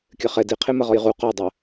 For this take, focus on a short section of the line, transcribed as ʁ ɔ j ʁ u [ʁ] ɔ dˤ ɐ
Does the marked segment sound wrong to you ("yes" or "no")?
yes